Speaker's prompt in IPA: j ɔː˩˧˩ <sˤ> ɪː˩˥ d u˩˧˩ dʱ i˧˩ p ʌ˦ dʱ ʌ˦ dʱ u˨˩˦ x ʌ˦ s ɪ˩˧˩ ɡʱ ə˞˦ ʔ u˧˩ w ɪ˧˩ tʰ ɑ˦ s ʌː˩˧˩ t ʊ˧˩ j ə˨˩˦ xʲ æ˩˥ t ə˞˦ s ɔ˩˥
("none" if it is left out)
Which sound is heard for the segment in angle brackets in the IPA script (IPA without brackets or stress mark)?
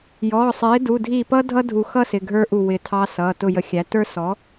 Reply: sˤ